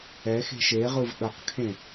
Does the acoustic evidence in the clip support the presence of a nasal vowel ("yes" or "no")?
yes